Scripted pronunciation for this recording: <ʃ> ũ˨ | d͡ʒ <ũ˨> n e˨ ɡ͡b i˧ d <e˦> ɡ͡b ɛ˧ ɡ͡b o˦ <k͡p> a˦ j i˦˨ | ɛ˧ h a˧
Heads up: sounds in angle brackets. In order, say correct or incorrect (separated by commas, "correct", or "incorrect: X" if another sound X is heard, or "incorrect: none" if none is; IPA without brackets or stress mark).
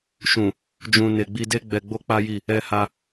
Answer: correct, correct, correct, correct